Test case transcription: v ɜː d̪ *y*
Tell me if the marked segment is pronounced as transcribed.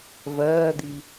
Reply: no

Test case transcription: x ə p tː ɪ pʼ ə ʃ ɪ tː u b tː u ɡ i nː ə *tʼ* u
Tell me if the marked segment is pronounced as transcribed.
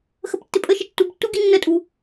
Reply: yes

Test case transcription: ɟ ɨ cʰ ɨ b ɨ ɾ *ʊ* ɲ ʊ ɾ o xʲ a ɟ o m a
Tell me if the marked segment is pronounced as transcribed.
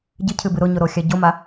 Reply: yes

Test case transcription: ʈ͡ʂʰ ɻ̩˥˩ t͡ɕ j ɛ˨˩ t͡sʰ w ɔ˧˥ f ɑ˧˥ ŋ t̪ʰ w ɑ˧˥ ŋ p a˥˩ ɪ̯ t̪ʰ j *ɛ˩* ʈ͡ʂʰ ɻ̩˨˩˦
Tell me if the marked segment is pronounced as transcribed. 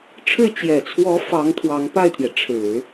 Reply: yes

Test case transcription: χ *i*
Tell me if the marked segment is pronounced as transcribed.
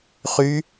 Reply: no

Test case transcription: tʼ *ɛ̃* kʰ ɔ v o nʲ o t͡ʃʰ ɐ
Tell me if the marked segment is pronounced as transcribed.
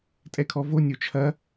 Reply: no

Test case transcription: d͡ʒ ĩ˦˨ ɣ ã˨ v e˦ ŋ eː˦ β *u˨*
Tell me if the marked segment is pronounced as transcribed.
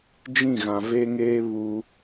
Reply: no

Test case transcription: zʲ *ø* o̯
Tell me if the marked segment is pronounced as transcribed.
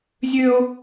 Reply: yes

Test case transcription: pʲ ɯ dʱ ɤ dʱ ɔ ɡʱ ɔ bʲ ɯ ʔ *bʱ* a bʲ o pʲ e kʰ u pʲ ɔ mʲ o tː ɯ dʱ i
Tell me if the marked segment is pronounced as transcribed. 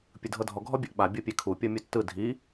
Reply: no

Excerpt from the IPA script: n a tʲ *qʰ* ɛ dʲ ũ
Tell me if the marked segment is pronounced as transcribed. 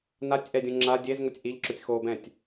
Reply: no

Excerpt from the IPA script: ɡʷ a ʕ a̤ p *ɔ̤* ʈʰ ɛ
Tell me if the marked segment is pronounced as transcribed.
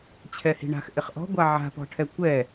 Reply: yes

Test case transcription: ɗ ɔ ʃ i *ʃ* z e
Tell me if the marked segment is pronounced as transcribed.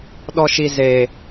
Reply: no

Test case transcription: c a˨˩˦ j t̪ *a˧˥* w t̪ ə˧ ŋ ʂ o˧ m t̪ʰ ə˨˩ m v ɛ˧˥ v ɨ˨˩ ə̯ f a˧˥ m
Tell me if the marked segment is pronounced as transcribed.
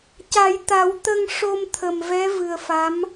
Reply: no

